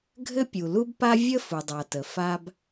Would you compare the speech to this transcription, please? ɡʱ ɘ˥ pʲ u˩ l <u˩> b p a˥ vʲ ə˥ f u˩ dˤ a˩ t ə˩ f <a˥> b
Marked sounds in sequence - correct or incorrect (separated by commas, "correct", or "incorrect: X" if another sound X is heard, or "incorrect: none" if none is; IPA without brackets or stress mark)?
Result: incorrect: u˥, correct